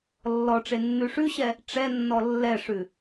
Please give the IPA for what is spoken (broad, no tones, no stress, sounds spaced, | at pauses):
lː ɔ ʈ͡ʂ e nː ʉ ʂ ʉ ɕ ɛ | ʈ͡ʂ ɛ nː ɔ lː ɛ ʂ ʉ